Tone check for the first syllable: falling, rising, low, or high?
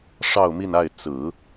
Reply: falling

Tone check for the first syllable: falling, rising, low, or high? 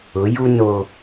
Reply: rising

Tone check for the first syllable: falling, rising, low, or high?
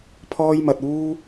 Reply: high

